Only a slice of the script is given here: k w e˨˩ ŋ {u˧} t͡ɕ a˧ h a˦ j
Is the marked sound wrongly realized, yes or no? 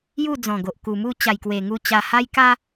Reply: no